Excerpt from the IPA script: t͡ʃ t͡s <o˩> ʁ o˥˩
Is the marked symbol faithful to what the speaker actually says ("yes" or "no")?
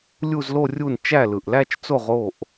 no